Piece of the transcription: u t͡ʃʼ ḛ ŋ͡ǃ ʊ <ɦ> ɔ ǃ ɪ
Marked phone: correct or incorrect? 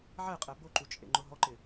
correct